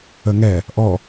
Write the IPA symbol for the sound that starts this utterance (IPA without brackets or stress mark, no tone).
ə